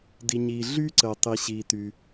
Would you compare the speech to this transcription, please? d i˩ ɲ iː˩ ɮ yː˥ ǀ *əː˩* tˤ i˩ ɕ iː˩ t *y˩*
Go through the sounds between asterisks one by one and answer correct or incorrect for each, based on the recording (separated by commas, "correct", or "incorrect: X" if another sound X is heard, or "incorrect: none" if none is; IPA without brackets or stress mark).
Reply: correct, correct